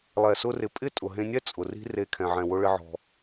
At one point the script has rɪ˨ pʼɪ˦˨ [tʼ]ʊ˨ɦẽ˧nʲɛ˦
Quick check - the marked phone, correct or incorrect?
correct